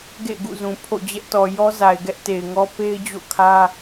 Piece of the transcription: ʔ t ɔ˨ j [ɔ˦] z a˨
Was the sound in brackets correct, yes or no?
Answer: yes